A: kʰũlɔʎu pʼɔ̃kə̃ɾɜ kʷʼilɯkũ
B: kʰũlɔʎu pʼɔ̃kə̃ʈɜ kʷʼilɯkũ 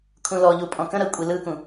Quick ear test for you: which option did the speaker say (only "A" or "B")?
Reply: A